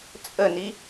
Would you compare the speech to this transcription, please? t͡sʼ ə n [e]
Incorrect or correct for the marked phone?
incorrect: i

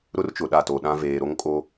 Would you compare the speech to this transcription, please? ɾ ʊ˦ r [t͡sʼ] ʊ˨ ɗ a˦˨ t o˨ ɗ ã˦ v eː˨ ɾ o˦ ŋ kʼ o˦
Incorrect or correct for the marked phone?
incorrect: t͡ʃ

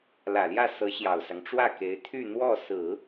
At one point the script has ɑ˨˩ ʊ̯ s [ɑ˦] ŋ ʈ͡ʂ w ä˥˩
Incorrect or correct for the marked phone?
correct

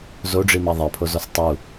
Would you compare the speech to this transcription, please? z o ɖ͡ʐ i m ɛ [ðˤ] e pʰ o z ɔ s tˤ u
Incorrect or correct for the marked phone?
correct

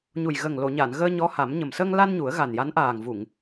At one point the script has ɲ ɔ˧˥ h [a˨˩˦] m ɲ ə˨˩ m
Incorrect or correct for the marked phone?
correct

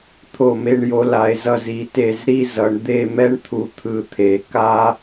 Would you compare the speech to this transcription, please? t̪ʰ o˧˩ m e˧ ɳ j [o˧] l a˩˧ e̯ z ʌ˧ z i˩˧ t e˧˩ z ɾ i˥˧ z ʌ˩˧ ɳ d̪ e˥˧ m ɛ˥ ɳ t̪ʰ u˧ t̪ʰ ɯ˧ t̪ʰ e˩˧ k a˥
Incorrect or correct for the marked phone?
correct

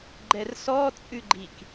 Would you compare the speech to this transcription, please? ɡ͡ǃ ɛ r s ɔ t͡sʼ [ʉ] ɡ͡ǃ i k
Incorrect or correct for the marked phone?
correct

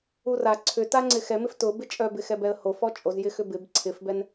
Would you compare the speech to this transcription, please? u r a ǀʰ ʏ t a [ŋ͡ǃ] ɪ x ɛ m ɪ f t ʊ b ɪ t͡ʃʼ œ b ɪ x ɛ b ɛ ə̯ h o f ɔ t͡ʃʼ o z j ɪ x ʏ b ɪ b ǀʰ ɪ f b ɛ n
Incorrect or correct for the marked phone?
incorrect: ŋ͡ǀ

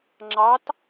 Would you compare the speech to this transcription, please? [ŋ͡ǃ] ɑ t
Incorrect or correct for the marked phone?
incorrect: ŋ͡ǁ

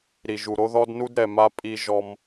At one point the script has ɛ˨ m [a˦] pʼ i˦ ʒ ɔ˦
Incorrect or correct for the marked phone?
correct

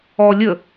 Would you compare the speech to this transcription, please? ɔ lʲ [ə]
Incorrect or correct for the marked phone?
correct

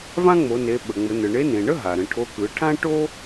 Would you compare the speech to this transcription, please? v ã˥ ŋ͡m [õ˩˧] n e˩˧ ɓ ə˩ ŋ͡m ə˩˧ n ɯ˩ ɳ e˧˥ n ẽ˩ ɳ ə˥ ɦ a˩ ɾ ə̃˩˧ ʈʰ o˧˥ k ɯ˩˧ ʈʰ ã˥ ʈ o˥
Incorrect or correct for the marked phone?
incorrect: o˩˧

